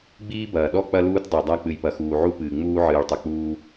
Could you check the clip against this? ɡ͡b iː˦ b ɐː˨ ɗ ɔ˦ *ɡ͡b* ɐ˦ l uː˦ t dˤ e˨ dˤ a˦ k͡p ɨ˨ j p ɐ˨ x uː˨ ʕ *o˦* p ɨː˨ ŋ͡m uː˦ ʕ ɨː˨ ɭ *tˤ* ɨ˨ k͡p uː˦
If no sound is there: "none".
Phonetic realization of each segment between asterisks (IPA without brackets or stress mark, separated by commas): k͡p, u˦, tˤ